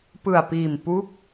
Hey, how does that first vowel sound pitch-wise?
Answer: low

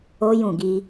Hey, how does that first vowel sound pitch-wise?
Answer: high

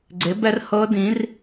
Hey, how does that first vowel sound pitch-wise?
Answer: rising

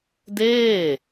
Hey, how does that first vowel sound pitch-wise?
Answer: falling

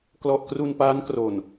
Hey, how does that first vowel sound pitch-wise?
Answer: low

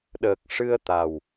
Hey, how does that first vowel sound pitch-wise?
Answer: low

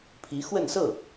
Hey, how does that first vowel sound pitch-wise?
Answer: rising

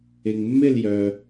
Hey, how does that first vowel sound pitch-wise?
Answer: low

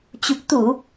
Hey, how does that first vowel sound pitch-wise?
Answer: low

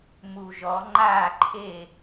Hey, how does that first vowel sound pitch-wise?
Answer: low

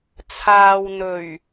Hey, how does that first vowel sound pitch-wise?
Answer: low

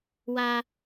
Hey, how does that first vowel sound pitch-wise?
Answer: high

